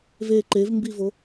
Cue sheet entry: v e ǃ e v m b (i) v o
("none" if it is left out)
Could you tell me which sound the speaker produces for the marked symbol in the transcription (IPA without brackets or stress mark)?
i